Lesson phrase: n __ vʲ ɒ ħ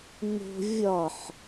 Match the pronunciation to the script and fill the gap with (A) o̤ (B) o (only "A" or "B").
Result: A